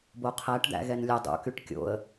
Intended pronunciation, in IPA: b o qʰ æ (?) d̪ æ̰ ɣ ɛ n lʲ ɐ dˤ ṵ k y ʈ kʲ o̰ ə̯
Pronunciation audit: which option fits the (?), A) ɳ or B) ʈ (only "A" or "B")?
B